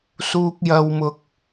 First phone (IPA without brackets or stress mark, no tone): s